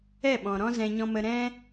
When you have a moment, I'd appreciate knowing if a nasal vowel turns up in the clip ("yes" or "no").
yes